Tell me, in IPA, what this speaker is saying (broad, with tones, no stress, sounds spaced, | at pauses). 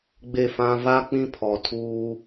ɡ͡b e˦˨ f ã˦ v a˦ k͡p ĩ˦ pʰ ɔ˨ tʰ uː˦